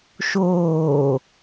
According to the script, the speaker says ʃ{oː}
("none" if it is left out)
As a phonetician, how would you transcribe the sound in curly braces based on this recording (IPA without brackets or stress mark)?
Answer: oː